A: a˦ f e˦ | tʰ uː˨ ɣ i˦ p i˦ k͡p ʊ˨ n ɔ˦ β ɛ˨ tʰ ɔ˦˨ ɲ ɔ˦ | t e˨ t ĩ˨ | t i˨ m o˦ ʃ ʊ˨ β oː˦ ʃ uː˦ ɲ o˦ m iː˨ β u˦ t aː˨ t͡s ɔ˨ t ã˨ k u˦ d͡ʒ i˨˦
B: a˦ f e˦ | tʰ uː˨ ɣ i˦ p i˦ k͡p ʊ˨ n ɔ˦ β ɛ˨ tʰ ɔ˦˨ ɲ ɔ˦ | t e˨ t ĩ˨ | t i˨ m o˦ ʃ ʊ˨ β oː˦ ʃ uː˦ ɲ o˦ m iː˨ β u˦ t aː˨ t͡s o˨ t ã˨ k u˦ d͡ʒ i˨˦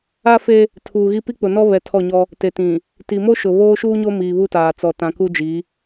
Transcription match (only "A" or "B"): A